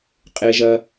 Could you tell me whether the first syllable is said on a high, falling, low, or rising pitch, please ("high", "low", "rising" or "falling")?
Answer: low